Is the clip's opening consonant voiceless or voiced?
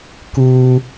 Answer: voiceless